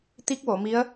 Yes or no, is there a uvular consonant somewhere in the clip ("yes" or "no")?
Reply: no